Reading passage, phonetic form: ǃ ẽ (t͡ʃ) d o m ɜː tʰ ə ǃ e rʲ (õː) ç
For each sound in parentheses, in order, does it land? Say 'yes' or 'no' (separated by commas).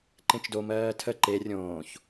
yes, yes